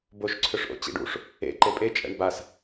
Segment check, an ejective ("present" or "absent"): present